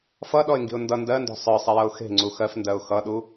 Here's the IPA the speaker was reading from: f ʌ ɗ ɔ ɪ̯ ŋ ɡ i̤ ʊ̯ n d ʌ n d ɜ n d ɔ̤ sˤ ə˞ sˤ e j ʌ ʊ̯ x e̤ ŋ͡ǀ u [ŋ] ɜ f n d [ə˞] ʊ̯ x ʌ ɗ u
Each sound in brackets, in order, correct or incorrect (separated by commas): incorrect, incorrect